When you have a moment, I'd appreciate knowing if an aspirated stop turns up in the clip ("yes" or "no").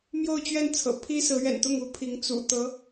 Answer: yes